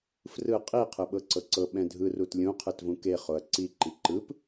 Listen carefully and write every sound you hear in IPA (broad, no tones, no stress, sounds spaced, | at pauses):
f r ɯ qʼ i qʰ ɯ ɓ ɤ ǀ ɤ ǀ ɤ ɓ ɛ̃ dʱ ɯ r u t lʲ ũ qʰ ɯ t v ũ k e χ o ɐ̯ ǀ i ǃ i ǃ ɯ p